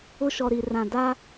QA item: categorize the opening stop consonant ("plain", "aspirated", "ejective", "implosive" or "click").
plain